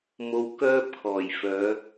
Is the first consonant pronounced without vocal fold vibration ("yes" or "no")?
no